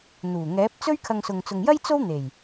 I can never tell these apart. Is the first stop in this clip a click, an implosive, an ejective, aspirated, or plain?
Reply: plain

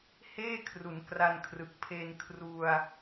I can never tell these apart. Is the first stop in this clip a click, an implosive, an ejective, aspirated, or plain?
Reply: aspirated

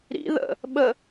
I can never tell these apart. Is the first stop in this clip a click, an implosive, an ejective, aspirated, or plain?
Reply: implosive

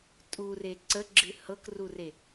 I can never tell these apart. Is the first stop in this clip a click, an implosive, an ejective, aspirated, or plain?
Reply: ejective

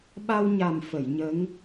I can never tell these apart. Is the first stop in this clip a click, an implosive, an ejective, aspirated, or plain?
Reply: implosive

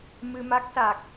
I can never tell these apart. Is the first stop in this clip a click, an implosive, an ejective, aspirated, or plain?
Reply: plain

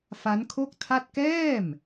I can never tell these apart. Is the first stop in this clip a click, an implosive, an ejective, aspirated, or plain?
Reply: aspirated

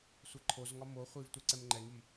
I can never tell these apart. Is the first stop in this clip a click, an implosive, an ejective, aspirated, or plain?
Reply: click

